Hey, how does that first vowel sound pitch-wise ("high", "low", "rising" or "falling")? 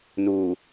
low